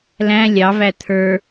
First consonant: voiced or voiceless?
voiced